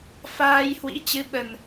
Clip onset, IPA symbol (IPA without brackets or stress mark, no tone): f